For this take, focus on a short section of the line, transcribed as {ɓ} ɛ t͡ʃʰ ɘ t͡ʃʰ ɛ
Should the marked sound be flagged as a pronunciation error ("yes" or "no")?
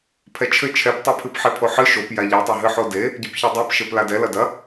yes